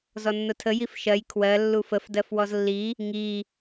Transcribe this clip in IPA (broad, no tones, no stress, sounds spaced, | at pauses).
z ɔ nː ʊ tʰ ə j i f ʃ ɜ j kʰ w ɜ lː u f ə f d ɜ f w ɔ z lː i | ŋ i